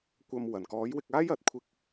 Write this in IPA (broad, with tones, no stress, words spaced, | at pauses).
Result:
kʷɐ˧m wɐ˨˩nkɔː˨˥jwɪ˧k̚aː˥j ɐ˨˥t̚kʷʰɪ˥k̚